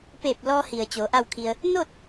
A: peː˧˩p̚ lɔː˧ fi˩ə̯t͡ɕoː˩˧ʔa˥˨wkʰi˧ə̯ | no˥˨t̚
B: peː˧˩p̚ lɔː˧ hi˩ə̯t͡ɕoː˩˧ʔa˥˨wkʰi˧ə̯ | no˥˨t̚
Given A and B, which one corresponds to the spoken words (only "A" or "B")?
B